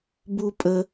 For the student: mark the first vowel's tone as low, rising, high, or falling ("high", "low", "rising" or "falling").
high